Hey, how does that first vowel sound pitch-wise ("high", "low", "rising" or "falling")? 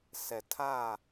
low